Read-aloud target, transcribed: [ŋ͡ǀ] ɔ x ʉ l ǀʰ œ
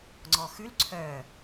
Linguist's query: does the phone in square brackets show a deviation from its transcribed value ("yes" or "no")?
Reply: no